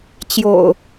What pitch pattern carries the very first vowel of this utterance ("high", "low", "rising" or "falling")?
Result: low